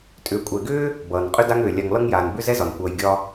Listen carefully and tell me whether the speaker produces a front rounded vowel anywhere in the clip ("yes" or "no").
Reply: yes